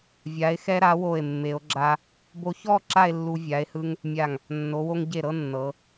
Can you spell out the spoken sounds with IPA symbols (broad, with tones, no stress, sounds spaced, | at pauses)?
vʲ a˩˧ e̯ x ɛ˧ ɾ a˩˧ w o˧˩ e̯ mː e˩˧ o̯ ɡ͡ǁ a˧ | b o˧ ç ɔ˥˧ ǁ a˥˧ e̯ lː u˧ vʲ a˩˧ e̯ h ɯ˧ ŋ | mʲ a˧˩ ŋ | nː o˩˧ w o˧ ŋ ɟ e˧˩ ɾ ɤ˥˧ nː ɤ˩˧